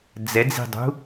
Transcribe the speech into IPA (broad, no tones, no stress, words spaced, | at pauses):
d͡zɛd͡zi̤dˤṳ